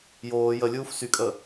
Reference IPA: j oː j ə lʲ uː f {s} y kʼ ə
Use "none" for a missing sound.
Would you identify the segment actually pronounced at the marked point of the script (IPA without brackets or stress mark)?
s